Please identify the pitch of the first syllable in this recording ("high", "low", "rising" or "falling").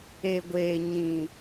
low